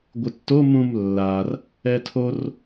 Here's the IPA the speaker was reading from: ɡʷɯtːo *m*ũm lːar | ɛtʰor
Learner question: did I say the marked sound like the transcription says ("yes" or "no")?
yes